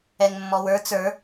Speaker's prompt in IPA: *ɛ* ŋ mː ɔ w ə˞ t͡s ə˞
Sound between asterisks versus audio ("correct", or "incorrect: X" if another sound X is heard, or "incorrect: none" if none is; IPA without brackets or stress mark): correct